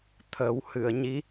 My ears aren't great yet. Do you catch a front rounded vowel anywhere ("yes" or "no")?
no